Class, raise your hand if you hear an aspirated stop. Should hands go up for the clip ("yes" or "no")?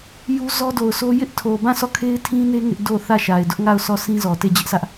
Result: yes